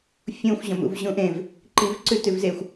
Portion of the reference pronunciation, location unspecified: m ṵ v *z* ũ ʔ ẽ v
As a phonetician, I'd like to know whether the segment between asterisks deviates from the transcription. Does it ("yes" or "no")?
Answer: yes